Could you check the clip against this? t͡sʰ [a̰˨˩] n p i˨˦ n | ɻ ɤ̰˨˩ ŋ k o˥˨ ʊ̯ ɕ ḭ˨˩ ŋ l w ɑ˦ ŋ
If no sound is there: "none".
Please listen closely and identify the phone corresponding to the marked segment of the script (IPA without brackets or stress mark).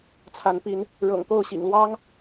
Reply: a˨˦